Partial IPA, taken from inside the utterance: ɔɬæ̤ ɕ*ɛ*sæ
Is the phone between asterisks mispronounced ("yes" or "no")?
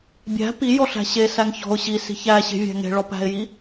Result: yes